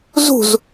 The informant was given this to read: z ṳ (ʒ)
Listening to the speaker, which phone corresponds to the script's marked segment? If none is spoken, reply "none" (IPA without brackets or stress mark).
z